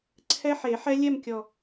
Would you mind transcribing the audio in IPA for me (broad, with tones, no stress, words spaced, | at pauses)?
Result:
ǀʰɛ˦˥ħe˨˩˦ ħɛ˦˥lʲɛ˥˧mkʲɔ˨˩